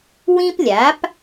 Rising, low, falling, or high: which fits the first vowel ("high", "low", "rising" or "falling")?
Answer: high